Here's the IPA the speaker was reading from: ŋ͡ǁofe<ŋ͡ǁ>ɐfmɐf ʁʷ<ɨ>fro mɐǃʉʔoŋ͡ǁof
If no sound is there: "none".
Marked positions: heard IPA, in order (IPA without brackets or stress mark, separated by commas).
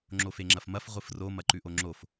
ŋ͡ǁ, ɨ